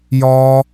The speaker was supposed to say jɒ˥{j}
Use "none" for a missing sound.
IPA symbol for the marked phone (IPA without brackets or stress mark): none